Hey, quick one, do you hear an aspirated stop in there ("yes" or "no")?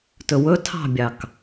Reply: yes